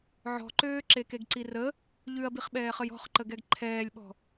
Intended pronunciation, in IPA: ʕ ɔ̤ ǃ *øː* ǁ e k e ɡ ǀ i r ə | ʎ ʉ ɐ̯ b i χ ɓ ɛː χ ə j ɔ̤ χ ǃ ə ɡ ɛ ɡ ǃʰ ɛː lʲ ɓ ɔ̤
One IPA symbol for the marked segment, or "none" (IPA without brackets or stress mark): øː